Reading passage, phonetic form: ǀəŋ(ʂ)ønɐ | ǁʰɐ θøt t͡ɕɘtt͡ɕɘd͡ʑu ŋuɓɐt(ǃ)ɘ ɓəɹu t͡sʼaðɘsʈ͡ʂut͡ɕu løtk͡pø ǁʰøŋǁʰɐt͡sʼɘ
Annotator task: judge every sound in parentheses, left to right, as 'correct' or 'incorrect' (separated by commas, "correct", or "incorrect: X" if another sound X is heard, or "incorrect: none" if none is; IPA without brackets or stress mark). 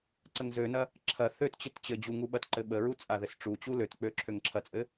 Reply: incorrect: z, correct